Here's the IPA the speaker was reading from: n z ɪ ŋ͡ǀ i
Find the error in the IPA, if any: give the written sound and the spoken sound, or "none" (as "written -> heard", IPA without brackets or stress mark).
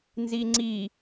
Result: ɪ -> i